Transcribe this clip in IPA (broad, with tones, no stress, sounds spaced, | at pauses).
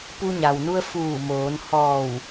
p u˧ ɲ a˩ w n u˧ ə̯ f uː˧˩ m oː˩˧ n h ɔː˧˩ w